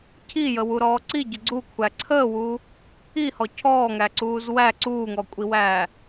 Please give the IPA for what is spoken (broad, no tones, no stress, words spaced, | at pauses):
cʰijəwuɾɔː ǀiɟə ɡ͡ǀukʷʰæ ǀʰəːwuː | ihɔ cʰɔːŋæǀuːz wæ ǀuːŋɔkʷʼiwæː